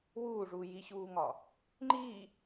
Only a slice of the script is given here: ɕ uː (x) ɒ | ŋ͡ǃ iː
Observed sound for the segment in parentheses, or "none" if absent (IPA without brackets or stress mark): ŋ